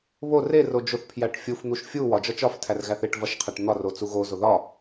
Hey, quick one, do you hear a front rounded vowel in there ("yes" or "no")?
no